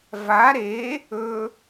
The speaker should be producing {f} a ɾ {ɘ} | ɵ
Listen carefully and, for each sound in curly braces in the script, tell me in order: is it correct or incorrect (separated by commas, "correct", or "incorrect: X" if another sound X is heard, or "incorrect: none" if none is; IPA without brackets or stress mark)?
incorrect: v, incorrect: e